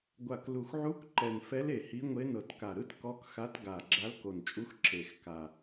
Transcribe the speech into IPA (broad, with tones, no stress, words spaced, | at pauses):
ɡʷa˨˩klu˨˩xʕu˧˥k ǃɛ˨˩nfɛ˧˥le˨˩ hi˧˥ŋʷe˧˥ nɤ˨˩tka˨˩ɾɯ˧˥t kɔ˧˥kxa˧˥t ɡa˨˩ɡ͡ǁa˧˥l ko˨˩nt͡ʃʼu˧˥x ǁe˨˩xka˨˩